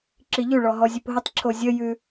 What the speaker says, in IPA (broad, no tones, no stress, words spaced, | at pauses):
ǁiʎʉɭɔ ɦɔzʲʉpɦətˤǁʰo zʲəjʉ